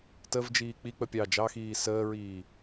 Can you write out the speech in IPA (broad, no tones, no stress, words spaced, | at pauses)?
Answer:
təvd͡ʒiː k͡pik͡pə pʲɑ d͡ʒɑxiː səːɹiː